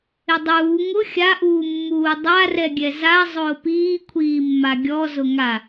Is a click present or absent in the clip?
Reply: absent